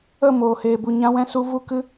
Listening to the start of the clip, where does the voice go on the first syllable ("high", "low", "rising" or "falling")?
falling